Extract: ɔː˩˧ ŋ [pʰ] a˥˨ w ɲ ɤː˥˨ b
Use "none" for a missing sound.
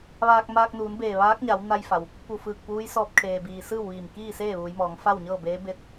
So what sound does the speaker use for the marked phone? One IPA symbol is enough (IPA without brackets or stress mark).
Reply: f